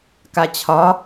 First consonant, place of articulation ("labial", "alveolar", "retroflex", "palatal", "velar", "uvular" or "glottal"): velar